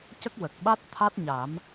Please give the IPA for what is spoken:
c ə˦˥ k̚ w ə˨˩ k̚ ɓ a˦˥ t̚ t̪ʰ a˦˥ t̚ ɲ a˨˩˦ m

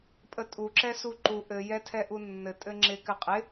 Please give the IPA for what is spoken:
pʼ ə tʼ u ǁ ɛ s u ǃ u ʔ ɘ j ɛ tʰ ɛ ʔ u nː ɘ tʼ ɘ ŋ͡ǁ ɪ k ɘ qʼ ɪ

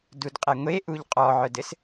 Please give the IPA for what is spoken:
d u d qʼ ɛ ŋʷ e ʔ u ʎ qʼ ɔ ʕ œ d ɘ s

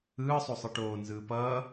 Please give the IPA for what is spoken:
ɯː sˤ o sˤ ɯ ʈ oː n z ɯː p ʌː

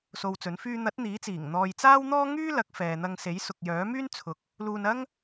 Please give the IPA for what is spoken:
s o˧ w t͡s ɵ˨˥ n f yː˧ n̪ ɐ˨˥ t̚ n̪ iː˨˥ t͡s iː˨˩ ŋ n̪ ɔː˧ j t͡s aː˥ w n̪ ɔː˥ ŋ yː˥ l ɐ˨˥ k̚ f ɛː˨ n̪ ɐ˧ ŋ s e˨˥ j s ʊ˨ k̚ j œː˨˥ m yː˥ n t͡sʰ ʊ˨ k̚ | l uː˧ n ɐ˥ ŋ

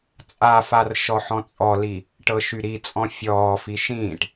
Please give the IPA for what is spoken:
t͡sʼ a f a r ʃ ɔ ħ ɔ̃ t͡sʼ ɔ l i | ʈ ɤ ʃ y ɾ i t͡sʼ ɔ̃ fʲ ɔː f i ʃ ĩː ʈ

